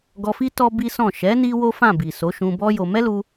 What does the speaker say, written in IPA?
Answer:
ɡɔ˧fi˦ tɔ˦bi˦sɔ̃˦˨ ʃɛ˨˦ ni˦wo˦fã˦˨ bi˨so˨˦ʃũ˧ bɔ˦jo˧ mɛ˦lu˧

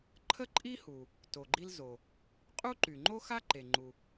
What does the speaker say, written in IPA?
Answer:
ǃʰə˥ǃʼi˥hu˩ | to˩ɡ͡ǃi˥lzo˩ | qʼu˥ǃy˩ŋ͡ǃo˥xa˥ ǃe˩ŋ͡ǃu˩

